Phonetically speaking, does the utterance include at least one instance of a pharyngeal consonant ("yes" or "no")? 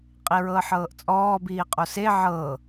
yes